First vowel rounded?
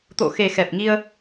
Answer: yes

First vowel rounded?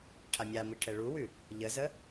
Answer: no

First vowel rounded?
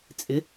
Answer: no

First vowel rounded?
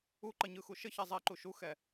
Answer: yes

